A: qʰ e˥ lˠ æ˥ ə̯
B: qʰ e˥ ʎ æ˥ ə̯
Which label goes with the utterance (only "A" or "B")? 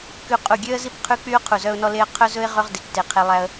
A